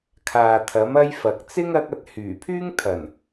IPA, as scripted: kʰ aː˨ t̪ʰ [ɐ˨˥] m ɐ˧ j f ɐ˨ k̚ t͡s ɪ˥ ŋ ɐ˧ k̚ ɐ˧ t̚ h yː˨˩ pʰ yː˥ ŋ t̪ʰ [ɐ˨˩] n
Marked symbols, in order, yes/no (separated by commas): yes, yes